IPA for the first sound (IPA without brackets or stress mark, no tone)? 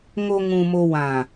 ŋ